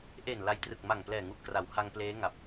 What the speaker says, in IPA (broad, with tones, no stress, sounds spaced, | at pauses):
ʔ e˨˩ n l a˧ j t r ɯ˨˩ k̚ m a˨˩ ŋ p l ɛː˨˩ ŋ u˨˩ ʔ k r a˩˦ w h a˧ ŋ p l eː˦˥ ŋ a˨˩ p̚